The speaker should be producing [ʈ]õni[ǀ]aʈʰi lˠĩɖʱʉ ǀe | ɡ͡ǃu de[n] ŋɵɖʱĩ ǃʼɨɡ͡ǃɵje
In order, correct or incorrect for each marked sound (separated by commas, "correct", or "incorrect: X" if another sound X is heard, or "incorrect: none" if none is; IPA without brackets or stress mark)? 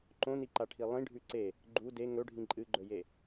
incorrect: ǃ, incorrect: ǃ, incorrect: none